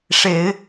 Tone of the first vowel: rising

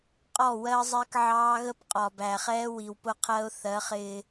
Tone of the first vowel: falling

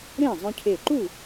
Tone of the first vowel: falling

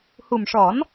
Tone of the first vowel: low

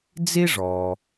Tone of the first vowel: high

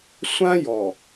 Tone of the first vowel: high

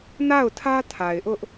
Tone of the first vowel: falling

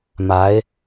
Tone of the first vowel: rising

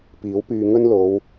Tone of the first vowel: rising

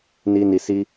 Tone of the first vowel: high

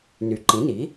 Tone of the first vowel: rising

